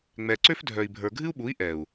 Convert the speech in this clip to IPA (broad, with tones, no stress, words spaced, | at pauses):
ŋ͡mɛ˨ ǀø˦fdʱœ˨i̯bʱə˞˨ ɡʱɨ˦u̯ɓu˨˦i̯ ʔɛ˨u̯